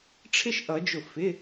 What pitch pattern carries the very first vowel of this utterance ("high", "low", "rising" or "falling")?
high